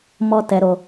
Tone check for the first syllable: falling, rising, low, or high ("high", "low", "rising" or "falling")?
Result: high